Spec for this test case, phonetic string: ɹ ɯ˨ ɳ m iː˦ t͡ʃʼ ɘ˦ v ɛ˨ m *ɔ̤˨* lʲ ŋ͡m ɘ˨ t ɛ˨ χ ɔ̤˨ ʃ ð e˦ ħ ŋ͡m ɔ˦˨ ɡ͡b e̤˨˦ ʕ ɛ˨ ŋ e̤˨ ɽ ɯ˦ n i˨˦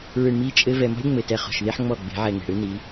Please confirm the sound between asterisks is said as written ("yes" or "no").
no